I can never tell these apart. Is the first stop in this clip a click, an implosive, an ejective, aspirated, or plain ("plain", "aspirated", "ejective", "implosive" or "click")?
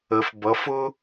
plain